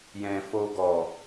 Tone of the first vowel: low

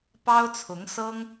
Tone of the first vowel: high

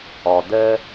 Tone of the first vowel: low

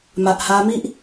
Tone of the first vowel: low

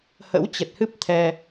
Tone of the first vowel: rising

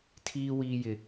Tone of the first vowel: high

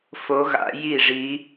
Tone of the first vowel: rising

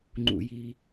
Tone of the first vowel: low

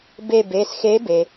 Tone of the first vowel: falling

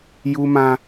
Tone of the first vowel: high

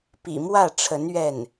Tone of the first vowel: low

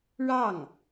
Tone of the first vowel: falling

